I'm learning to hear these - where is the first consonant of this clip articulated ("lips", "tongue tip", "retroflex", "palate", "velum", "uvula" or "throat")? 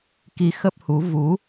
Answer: velum